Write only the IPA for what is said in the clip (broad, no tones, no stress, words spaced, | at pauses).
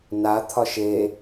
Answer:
nat̪ʰɒʃ e